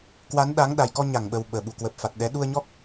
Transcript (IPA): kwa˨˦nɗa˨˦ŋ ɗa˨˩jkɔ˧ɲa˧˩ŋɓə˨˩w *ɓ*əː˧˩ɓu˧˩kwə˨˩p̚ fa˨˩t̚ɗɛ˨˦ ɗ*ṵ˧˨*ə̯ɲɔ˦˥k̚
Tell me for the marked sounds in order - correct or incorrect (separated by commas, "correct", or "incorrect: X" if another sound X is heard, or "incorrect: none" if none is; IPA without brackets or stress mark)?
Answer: correct, incorrect: u˧